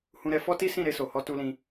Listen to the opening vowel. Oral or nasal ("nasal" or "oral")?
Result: nasal